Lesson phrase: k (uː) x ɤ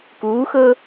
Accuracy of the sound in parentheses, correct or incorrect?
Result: correct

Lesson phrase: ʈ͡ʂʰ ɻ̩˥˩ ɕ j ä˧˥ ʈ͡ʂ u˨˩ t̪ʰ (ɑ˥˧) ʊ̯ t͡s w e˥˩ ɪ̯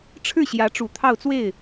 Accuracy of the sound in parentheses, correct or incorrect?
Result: correct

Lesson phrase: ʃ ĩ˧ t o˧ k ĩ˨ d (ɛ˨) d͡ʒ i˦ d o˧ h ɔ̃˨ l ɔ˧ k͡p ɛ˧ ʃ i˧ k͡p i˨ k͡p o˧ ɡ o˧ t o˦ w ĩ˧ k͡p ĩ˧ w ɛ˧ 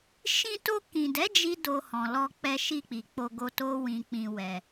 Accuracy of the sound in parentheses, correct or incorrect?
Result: incorrect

